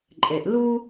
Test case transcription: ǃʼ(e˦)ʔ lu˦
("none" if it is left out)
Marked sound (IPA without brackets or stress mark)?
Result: e˨